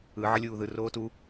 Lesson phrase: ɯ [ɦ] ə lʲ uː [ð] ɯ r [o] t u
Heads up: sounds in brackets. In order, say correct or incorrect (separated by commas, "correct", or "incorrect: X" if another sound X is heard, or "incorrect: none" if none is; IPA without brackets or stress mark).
incorrect: ʕ, correct, incorrect: oː